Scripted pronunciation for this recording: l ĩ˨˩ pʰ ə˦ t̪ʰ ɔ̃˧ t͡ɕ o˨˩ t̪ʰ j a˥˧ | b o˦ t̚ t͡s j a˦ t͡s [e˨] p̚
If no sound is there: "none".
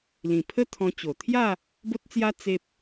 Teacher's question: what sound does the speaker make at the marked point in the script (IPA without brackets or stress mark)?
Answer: e˦